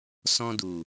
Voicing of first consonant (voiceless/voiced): voiceless